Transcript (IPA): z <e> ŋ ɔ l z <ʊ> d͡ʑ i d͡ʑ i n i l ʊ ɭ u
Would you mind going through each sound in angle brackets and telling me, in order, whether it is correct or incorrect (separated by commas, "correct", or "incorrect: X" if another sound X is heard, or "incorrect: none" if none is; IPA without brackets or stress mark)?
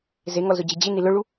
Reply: correct, correct